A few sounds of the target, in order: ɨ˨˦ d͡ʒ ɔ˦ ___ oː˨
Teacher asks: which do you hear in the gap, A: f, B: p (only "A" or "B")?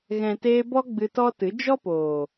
B